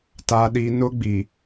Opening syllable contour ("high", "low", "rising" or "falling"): low